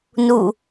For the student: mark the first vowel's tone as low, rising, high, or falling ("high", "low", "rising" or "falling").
falling